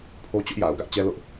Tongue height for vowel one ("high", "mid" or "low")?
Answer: mid